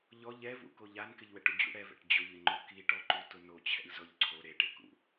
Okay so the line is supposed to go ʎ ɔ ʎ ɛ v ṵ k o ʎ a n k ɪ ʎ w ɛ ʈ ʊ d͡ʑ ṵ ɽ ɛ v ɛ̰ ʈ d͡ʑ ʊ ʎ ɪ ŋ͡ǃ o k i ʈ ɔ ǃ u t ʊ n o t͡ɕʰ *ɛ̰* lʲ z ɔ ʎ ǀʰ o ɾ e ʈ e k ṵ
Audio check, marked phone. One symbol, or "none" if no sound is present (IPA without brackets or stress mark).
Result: ɛ̰